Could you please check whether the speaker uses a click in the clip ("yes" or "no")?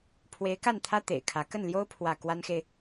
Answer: no